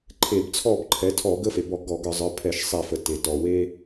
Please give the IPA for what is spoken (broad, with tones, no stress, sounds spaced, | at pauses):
ǃʰ e˧˩˧ b t͡sʰ ɔ˥˨ b ǃʰ ɛ˩˥ tʰ ɔ˧˩˧ ɡ ə˦ f e˩ b ɔ˧˩˧ ɡ ɔ˧˩˧ ɡ ə˞˧˩˧ zˤ ə˞˩˥ pʰ ɛ˧˩˧ ʃ sˤ e˧˩˧ f ə˩ t e˩ t ɔ˩ w e˦